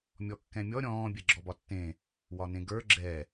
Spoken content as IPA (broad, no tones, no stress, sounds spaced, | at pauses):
mʲ ɔ kː ɛ̃ mʲ ɔ ɾʲ ɔ̃ː bʲ ɛ ɡ͡ǁ ɔ b ɒ tː ẽ | w ɒ n ẽ ɡ ə˞ ɡ͡ǁ ɛ